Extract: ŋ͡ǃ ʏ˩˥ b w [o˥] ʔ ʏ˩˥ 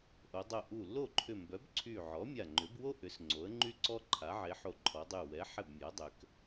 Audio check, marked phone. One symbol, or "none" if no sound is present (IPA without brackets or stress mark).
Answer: o˥